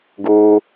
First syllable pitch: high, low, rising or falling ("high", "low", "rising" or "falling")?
high